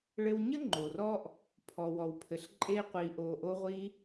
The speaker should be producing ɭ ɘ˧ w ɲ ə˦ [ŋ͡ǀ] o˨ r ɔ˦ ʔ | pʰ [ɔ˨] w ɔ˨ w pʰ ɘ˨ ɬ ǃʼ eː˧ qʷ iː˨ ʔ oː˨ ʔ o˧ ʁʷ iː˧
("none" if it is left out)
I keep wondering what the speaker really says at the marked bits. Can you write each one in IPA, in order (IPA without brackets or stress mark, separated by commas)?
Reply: ŋ͡ǃ, ɔ˨